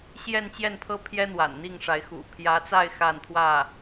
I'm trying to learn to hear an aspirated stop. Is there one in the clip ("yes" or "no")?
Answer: yes